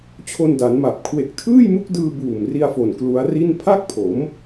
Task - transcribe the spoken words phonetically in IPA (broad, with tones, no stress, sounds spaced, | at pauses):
t͡ɕʰ o˧ n d a˩˦ n m a˨˩ p̚ kʰ w e˨˩ k̚ tʰ ɯː˥˩ j m u˦˥ k̚ d ɯː˧ b uː˨˩ m r i˧ a̯ f o˨˩ n k l u˦˥ a̯ r i˥˩ n pʰ a˥˩ k̚ pʰ o˩˦ m